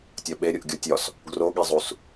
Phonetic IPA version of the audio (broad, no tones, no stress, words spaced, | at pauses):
tʲɒɓeɾʲuʔ ɡʲotʲɒs | ɡroɠezˤus